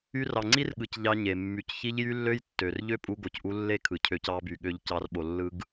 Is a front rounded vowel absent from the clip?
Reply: no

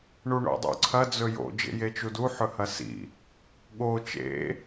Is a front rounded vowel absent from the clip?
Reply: yes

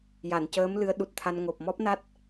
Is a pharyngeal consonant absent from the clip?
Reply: yes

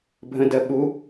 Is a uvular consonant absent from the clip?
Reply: yes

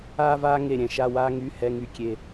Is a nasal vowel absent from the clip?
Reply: no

